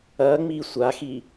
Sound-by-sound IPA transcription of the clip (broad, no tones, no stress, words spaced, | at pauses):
ɐːŋ͡miː sʷaxiː